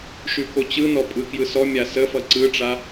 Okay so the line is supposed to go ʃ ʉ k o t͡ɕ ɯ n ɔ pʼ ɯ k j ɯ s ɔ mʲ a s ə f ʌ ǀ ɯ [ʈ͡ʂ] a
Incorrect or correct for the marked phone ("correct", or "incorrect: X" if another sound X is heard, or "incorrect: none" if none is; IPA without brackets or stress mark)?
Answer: correct